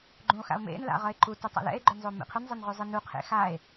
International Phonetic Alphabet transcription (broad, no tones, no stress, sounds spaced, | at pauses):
ɡ͡ǃ ũ o̯ x a̰ o̯ m ḛ n l a̰ ʁ ʌ e̯ ǃ u t u tˤ a̰ l ɛ̰ e̯ ɡ͡ǃ ʏ n zˤ o m ḛ qʰ ʏ n zˤ ɛ n ʁ ʉ zˤ ɨ n u qʰ ḛ x a e̯